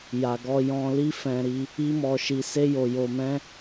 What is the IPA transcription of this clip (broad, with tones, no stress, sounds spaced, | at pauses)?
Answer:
j a˨ ɡ ɔ˧ j ɔ̃˧ l i˦ f ɛ̃˧ ɾ i˧ | i˦ m ɔ˧ ʃ i˧ s e˦ j o˧ j o˧ m ɛ̃˦